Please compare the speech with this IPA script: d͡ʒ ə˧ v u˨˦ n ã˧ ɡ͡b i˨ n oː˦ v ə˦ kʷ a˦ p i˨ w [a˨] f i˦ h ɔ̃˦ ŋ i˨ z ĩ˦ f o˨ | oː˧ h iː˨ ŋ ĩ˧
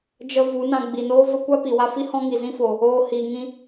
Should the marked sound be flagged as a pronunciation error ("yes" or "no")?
yes